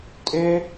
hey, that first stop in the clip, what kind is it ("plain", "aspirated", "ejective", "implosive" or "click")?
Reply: ejective